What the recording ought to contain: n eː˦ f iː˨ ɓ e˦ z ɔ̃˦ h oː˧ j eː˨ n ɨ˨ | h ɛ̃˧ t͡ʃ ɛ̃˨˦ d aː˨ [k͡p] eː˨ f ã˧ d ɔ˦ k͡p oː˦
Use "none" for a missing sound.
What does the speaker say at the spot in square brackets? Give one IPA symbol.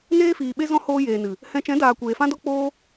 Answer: kʷ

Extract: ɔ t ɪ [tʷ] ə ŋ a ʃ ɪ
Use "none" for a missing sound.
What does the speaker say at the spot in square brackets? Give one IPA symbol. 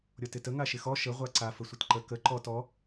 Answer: t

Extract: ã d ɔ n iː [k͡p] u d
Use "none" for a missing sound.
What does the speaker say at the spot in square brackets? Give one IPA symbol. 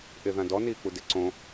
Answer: k͡p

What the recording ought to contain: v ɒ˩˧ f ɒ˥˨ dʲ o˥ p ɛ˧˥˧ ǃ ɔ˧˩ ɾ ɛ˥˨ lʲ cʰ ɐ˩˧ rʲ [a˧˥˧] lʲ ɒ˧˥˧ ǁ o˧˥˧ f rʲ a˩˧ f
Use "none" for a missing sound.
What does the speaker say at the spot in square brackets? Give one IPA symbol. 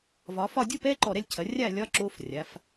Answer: a˥˨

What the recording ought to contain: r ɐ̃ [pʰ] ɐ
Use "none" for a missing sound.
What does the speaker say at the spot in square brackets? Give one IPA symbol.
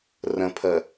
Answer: pʰ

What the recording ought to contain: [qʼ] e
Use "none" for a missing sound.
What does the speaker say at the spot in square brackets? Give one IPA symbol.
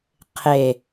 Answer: qʰ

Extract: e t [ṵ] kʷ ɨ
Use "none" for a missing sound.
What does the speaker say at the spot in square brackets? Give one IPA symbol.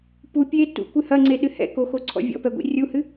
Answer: ṵ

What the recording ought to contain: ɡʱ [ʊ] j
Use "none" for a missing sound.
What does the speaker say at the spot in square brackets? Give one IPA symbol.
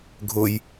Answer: ʊ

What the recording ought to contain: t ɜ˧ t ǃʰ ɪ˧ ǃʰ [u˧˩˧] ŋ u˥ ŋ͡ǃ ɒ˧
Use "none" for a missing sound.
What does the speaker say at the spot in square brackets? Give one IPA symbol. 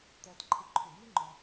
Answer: u˧˩˧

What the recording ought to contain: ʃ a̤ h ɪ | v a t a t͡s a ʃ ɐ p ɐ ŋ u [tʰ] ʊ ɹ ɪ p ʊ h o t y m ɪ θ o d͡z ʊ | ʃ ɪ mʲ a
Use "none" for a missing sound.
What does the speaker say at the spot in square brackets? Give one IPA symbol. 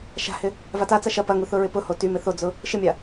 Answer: θ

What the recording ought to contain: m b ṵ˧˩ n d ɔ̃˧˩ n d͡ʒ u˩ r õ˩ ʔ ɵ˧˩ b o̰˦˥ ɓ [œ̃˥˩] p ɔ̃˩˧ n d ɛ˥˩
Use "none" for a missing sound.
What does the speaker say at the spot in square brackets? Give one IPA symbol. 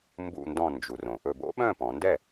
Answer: œ̃˥˩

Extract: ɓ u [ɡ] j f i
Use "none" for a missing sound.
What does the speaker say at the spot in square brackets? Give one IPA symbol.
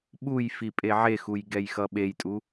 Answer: none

